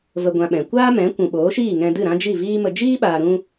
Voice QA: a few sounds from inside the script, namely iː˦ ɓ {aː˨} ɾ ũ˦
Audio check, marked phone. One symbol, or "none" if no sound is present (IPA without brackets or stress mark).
aː˨